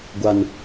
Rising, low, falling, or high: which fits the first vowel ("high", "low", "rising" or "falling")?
low